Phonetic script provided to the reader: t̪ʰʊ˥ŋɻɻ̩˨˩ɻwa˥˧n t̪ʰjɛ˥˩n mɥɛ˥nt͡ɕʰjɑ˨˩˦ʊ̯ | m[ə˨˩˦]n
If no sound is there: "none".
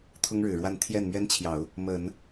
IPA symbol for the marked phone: ə˨˩˦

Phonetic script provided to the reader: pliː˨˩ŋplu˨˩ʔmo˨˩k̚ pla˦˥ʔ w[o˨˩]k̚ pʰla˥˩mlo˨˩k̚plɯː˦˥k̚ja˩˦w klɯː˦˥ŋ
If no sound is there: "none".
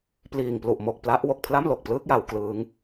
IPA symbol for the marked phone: o˨˩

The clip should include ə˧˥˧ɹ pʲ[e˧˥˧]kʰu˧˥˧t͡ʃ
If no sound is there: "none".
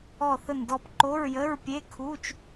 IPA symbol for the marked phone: e˧˥˧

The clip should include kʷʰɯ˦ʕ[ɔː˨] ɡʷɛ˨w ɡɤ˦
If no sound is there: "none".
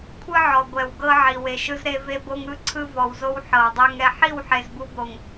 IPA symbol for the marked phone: ɔ˨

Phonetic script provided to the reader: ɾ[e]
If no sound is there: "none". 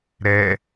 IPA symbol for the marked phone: ɛ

